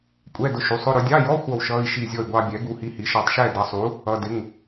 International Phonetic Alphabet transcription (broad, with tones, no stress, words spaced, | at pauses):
kʷʼɛ˧˥˧dʊ˧ʃu˩˥sˤʊ˧˥˧ ɾʊ˧dʲɑ˧˥˧jɔ˧˥˧ xʷʌ˥˨wʃʌ˧˥˧i̯ ʃi˥˨zʲɔ˥˨y̯ ɡʷɑ˧bʲɛ˩˥ ɡu˧hi˧hi˩˥ ʃɔ˧tˤʃɛ˥˨ dʌ˩˥sˤu˩˥ | ʌ˧˥˧dɪ˧˥˧ŋ